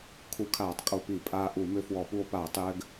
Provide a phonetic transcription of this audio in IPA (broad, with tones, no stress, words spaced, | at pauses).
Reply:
kʰu˧˩˧kʰaː˧˩˧tˤ kʼo˧pi˧˩˧ pʼaː˧ʔu˧˩˧mʏ˧ fwɔ˧˩˧pu˧o̯ paː˧˩˧tˤjɘː˧ɡ